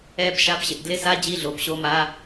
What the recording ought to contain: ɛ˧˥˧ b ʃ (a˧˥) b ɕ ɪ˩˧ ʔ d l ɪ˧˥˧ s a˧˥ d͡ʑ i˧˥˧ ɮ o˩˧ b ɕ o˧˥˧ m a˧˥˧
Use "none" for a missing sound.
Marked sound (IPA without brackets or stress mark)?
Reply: a˧˥